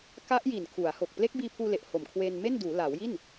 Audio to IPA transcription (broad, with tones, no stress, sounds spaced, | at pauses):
k a˦˥ ʔ j i˨˩ n kʰ u˩˦ a̯ h o˨˩ k̚ p l e˦˥ k̚ b iː˧ pʰ uː˧ l e˨˩ ʔ h o˨˩ m kʰ w eː˧ n m e˥˩ n d uː˩˦ l aː˩˦ w j i˥˩ n